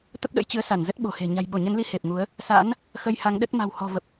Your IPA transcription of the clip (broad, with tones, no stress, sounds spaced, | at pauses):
t̪ ə˦˥ p̚ ɗ ə̰˧˥ j t͡ɕ ɨ˨˦ ə̯ s a˧˩ n z ə˦˥ t̚ ɓ o̤˨˩ h e̤˨˩ ɲ a̤˨˩ j ɓ o˧˩ ɲ ə˨˦ n l i˧ h e˨˩ p̚ ŋ u˨˦ ə̯ | s a̰˧˥ n | x ə˧ j h a˨˦ ŋ ɗ ə˦˥ t̚ m a̤˨˩ w h ɔ̤˨˩ v ə˨˩ p̚